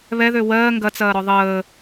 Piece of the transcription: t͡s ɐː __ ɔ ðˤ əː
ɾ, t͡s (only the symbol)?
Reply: ɾ